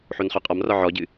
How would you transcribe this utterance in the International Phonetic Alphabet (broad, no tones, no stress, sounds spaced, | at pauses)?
ħ o n χ œ qʼ ɒ m r ɒ ʕ ɔ ɟ ɨ